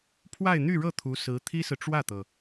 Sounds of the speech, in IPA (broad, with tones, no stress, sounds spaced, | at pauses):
pʰ w a˥˧ ɪ̯ n̪ y˥˧ ɻ ɤ˥˩ t̪ʰ u˧˥ s ɹ̩˧˥ t̪ʰ i˥ s ɹ̩˨ ʈ͡ʂ w ä˥˩ t̪ ɤ˩